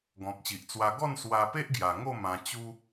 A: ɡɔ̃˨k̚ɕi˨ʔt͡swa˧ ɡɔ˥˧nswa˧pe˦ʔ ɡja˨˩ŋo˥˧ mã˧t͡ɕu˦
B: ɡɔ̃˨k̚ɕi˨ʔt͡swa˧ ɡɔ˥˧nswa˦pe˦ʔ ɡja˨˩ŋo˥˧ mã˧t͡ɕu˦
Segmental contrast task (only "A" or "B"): A